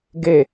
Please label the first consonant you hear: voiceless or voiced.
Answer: voiced